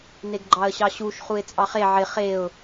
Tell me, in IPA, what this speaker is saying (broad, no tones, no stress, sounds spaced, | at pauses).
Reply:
n e ɡ ɡ͡ǃ ɑ ə̯ ɕ ɑ ɕ u ʃ χ u ɪ̯ t͡sʼ ɑ χ e ʕ ɪ χ e ʊ̯